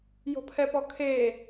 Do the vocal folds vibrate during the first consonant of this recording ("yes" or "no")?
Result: yes